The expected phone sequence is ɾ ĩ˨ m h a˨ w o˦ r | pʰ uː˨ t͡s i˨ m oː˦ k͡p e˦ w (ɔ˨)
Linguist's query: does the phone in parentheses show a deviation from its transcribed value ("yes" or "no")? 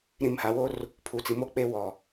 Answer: no